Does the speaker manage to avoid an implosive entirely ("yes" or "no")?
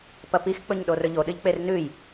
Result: no